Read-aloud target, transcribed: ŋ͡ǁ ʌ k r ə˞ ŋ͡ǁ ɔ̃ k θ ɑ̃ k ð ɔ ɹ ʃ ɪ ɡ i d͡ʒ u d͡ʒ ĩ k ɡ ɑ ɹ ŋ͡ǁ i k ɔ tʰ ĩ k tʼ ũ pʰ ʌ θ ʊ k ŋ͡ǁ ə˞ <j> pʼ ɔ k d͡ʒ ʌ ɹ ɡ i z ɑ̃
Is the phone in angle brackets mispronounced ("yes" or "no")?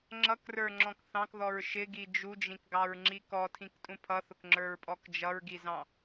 yes